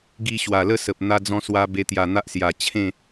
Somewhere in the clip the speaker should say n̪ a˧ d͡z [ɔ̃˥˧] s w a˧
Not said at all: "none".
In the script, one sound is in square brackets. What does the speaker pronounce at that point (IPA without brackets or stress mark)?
ɔ̃˧